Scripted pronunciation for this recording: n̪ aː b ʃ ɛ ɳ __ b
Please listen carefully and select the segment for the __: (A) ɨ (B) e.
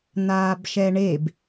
B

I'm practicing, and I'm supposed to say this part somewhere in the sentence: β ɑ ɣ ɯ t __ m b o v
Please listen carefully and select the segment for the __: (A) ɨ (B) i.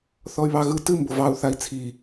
A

